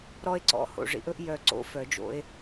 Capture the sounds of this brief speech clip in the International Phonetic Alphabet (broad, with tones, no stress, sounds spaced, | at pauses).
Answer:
ɾ ɔ˦ e̯ ǀ ɔ̰˨˩ h o̰˨˩ ʐ ḭ˨˦ ʔ ɵ˦ ʔ j œ˨˩ ǀ o̰˦ f œ˨˩˦ d͡ʒ o̰˨˦ e̯